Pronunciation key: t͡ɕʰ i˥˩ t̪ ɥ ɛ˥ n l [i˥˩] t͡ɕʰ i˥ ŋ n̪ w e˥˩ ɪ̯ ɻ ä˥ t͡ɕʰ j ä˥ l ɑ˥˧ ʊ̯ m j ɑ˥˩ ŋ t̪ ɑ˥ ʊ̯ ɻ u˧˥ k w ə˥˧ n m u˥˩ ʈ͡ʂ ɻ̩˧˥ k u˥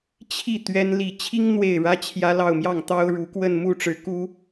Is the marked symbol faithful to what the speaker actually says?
no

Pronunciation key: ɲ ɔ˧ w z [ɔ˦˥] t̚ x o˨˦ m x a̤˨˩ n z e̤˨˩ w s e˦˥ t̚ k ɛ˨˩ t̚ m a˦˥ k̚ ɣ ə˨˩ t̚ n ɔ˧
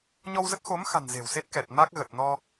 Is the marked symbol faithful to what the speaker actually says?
no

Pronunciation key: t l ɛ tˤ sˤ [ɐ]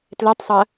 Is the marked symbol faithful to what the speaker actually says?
yes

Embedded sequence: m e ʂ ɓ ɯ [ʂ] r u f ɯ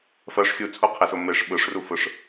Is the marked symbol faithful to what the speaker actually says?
yes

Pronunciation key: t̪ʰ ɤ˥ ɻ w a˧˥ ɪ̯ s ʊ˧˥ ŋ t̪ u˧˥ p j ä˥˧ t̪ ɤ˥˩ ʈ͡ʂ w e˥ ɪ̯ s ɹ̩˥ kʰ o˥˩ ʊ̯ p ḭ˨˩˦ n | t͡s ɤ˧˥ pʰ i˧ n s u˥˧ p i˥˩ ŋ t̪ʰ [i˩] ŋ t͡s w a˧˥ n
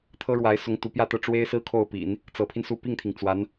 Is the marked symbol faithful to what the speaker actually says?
yes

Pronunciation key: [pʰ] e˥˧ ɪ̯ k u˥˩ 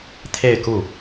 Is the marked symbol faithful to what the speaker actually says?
no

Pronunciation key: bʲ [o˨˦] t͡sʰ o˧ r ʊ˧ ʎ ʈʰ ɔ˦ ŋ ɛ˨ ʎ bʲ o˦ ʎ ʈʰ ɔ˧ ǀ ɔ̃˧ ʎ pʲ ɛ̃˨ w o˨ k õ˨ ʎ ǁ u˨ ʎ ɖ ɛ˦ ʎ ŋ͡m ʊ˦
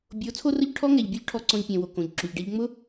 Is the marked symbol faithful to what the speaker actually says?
yes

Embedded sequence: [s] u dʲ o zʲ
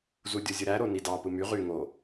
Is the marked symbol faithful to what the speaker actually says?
no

